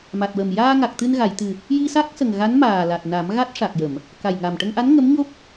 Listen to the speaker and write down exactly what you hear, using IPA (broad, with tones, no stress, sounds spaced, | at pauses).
m a˨˩ t̚ w ə˨˩ m j aː˧ ŋ a˨˩ k̚ t̪ ɨ˧ n ɣ a˨˩˨ j t̪ ɨ˨˩ | j i˧ s a˦˥ k̚ s ə˨˩ ŋ ɣ a˧˥ n m aː˨˩ l a˨˩ t̚ n a˨˩˦ m ɣ a˦˥ t̚ ʂ a˨˩ k̚ j ə˨˩˨ m | k a˨˩ j ŋ a˨˩ m ʈ ə˧ ŋ ʔ a˧˥ n ŋ ə˧˥ m ɲ o˦˥ p̚